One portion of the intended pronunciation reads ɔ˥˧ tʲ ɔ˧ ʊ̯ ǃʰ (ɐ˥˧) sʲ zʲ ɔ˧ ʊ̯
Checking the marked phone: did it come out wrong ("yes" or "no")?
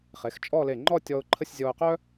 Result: yes